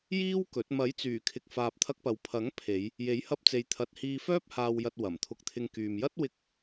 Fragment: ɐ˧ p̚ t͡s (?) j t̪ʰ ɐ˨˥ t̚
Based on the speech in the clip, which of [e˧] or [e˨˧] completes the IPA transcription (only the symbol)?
e˨˧